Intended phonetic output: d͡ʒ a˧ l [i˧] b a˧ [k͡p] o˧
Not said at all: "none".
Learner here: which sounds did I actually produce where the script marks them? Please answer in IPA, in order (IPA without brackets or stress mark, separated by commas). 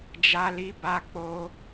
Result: i˧, k͡p